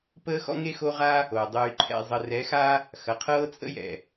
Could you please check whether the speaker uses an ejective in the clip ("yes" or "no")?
yes